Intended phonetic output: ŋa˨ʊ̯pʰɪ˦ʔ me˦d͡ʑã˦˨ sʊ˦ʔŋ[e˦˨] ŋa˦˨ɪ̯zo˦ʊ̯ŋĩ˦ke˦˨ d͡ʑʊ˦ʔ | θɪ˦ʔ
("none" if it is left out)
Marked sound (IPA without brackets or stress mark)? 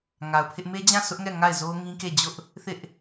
ɛ˦˨